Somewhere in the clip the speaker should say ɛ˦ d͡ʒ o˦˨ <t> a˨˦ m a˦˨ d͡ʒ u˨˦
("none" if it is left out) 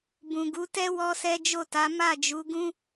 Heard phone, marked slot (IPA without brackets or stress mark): t